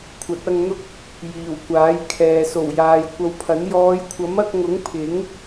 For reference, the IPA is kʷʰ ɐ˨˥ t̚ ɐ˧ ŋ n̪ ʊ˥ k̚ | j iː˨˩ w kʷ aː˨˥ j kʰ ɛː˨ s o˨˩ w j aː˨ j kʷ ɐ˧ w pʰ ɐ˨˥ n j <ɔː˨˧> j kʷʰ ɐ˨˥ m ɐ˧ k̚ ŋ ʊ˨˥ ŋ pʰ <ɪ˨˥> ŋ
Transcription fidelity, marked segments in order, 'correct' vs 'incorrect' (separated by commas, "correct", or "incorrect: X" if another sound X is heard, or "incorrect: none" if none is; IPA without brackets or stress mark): correct, correct